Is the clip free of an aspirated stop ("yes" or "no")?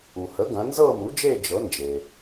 yes